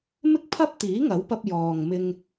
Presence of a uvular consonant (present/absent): absent